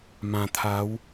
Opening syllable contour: low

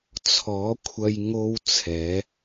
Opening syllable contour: rising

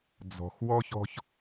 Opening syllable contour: low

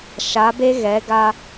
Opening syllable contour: rising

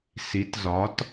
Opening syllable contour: rising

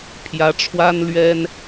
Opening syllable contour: rising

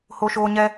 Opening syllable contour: high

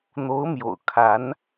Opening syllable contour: rising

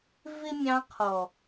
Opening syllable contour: high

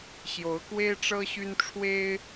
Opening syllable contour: rising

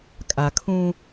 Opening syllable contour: low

